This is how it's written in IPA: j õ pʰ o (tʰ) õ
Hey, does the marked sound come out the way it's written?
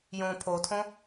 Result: yes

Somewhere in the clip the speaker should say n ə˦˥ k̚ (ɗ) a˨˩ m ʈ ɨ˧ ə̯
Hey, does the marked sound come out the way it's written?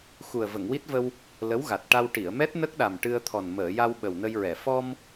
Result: yes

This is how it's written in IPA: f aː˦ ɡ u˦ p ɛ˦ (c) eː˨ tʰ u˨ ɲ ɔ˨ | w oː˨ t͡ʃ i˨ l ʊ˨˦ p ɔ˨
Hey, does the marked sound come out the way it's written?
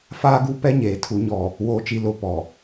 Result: no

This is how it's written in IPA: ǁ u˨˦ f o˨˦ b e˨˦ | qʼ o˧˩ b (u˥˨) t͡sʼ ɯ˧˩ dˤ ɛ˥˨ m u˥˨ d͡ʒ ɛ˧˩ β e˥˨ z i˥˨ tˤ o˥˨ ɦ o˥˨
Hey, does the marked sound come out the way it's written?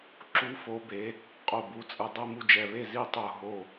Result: no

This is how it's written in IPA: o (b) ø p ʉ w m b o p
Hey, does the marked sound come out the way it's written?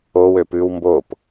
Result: no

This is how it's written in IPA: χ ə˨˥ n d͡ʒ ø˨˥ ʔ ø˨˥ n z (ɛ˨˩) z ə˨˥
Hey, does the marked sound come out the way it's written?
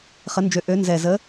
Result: yes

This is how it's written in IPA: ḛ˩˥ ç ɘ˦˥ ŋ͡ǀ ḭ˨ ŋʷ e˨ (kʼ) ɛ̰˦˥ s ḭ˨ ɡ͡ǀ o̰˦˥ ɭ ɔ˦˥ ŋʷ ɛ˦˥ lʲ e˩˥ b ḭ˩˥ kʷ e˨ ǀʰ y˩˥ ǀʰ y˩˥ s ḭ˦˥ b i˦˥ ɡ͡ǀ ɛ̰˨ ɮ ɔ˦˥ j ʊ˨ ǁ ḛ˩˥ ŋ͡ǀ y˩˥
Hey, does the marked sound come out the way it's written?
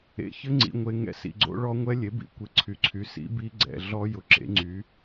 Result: no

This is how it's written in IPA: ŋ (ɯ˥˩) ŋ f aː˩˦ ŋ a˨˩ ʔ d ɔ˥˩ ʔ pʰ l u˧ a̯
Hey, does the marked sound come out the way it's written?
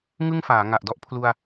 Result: yes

